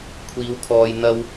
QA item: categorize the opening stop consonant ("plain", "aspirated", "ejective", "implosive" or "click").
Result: aspirated